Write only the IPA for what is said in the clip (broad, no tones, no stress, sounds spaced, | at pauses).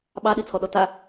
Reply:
ɓ ɑ ɗ i t͡sʰ ɔ ɗ ɔ t a